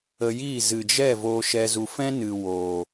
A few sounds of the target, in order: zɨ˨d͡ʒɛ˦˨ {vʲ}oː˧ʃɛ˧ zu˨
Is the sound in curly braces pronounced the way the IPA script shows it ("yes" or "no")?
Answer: no